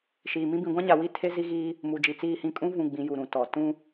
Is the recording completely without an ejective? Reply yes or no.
no